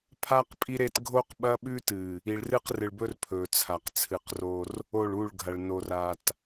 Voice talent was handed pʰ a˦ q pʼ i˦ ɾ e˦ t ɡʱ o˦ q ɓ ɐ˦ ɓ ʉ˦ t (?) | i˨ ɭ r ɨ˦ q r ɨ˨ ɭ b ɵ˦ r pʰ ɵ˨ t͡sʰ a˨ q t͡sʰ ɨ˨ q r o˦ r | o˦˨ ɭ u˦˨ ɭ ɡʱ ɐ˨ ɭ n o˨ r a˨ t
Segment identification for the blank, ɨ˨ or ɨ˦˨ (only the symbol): ɨ˨